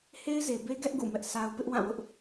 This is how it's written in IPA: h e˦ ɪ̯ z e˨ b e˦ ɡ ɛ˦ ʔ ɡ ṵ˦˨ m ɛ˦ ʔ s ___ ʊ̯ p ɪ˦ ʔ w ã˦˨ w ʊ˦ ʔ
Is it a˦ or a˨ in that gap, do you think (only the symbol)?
a˦